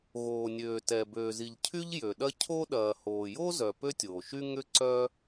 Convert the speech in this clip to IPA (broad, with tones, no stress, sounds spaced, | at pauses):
ɣ oː˩ nʲ øː˩ t ɛ˩ b øː˩ z i˩ ʎ cʰ y˥ ʎ j ø˩ ɗ ɐ˥ cʰ o˥ ɗ ɐː˩ h oː˩ j o˥ z œ˩ p ø˥ tʲ oː˩ ʃ y˥ ŋ ʏ˥ ǀ œ˥